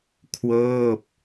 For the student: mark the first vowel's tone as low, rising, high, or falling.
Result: falling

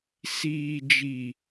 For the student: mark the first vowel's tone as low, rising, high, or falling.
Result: low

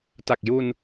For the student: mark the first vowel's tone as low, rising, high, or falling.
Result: low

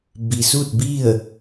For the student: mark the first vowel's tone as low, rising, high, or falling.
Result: low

